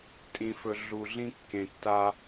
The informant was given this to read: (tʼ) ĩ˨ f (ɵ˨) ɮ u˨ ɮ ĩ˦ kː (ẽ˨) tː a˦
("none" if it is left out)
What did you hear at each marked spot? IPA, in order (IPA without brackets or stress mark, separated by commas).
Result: tʼ, ɵ˨, ẽ˨